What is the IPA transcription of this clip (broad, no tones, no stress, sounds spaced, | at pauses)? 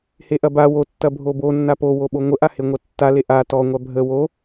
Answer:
h e ʔ ɐ b a w o tː ɐ bʱ o b o nː a p o w o ɓ o ŋʷ ə ʔ a h e ŋʷ ɐ tː a l e ʔ a t ɔ ŋʷ a bʱ ə w o